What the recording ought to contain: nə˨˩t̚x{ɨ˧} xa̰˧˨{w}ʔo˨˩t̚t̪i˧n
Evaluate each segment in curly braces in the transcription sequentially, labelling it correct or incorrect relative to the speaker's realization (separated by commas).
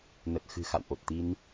incorrect, correct